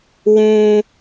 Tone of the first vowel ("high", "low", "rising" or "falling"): low